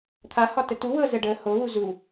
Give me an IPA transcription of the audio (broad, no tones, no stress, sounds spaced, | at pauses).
t̪ʰ a h ɒ t ə t u w ɤ z ə ɖ ə h o w u z u